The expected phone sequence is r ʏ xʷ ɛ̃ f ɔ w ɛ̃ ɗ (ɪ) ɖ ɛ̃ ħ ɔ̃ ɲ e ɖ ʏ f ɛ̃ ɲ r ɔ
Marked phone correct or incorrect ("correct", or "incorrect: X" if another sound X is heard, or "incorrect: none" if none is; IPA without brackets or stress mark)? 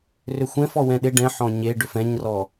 correct